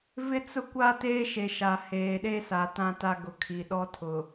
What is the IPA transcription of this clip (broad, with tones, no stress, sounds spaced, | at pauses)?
v ɪ˦ t͡s ʊ˦ kʷ a˦ t eː˦ ʃ e˨ ʃ a˨ h eː˨ ɗ e˦ s a˨˦ t ã˦ t a˦ ɡ ʊ˨ kʰ i˨ ɗ ɔ˦ tʰ ʊ˨